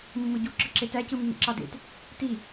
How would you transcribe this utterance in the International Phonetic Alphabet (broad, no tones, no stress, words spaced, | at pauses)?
mːɯɟu ǁɯǁetæ cɯmːḭǁɑdḛt | ti